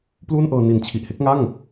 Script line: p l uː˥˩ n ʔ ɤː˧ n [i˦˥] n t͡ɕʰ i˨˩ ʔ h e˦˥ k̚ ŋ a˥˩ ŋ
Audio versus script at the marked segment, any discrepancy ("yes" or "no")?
yes